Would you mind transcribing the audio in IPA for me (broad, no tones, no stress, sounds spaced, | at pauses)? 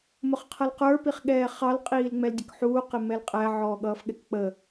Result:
m ʊ χ qʰ ʌ l q ə˞ p i χ ɠ ɛː χ ɑ l qʼ iː l ŋ͡m ɛ l dʲ ə k ħ uː q ɪ m ɛ l qʼ æ ʕ ɔː ɠ ʌː f ɠ ɛ k k͡p ə